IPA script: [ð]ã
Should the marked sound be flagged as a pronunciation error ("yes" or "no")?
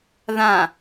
no